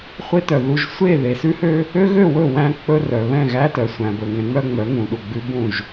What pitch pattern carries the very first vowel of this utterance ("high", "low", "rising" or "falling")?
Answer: high